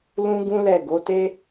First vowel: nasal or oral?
nasal